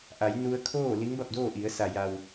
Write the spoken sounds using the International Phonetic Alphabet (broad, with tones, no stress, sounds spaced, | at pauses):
ʔ a˩˧ j n u˧ ə̯ kʰ oː˥˨ l i˧˥ ŋ b a˥˨ p̚ d oː˥˨ ʔ i˩˧ ə̯ s a˩ j a˩ w